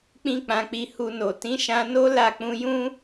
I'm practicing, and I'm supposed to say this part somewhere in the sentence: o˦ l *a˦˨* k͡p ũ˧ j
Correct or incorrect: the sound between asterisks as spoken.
correct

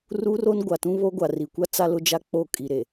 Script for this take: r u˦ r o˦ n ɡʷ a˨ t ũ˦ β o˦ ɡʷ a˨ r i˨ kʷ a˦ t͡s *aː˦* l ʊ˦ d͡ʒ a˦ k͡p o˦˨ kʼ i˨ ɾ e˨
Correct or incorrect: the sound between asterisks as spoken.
incorrect: a˦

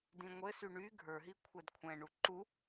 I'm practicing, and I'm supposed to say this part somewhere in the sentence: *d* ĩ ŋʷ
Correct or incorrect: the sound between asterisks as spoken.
correct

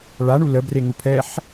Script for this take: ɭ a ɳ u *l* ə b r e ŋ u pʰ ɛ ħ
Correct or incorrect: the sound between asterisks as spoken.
correct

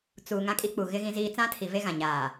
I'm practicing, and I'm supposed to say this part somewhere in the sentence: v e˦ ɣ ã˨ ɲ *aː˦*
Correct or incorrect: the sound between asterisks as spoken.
incorrect: aː˨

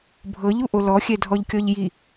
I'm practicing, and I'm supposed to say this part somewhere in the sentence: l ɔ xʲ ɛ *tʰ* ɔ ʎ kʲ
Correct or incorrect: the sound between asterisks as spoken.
incorrect: dʱ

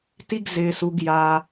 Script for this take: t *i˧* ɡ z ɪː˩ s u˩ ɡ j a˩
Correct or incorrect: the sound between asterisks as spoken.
correct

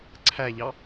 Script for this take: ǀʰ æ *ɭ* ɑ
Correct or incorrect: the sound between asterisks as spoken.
incorrect: ʎ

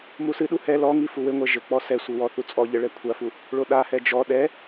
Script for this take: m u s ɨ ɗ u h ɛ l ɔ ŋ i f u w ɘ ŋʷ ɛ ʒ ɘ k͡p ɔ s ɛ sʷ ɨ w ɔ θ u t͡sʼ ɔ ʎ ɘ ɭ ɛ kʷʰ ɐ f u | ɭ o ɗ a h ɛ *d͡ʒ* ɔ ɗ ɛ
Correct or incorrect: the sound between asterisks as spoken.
correct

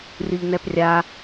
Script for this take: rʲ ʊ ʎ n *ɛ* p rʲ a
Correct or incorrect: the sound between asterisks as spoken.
correct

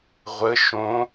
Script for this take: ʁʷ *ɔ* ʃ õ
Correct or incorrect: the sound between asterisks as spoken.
incorrect: ə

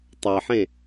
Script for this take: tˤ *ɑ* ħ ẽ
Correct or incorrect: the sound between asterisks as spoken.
correct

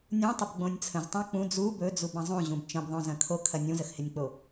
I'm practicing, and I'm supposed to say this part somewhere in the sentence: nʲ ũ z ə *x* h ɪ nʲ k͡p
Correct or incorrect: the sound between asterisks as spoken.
correct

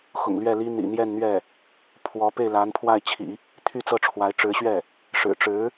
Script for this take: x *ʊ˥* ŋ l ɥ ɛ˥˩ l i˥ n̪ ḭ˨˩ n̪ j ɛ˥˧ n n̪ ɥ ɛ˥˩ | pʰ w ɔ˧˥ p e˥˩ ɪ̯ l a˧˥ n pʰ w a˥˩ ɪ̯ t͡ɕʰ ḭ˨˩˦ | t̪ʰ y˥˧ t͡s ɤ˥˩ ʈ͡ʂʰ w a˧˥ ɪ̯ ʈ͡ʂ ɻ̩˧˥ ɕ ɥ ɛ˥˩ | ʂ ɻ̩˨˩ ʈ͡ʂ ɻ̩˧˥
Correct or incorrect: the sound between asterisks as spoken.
incorrect: ʊ̰˨˩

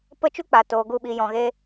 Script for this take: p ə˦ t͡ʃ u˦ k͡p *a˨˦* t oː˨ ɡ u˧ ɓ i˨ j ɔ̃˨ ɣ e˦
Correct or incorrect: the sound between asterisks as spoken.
incorrect: a˨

